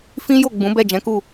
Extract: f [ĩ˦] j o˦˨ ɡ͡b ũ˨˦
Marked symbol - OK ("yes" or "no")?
yes